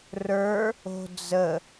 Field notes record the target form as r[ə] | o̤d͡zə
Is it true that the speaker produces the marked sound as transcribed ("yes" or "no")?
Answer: no